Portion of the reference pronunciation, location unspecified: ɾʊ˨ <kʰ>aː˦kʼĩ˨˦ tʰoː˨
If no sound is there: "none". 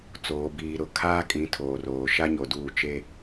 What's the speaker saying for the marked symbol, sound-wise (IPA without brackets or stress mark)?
kʰ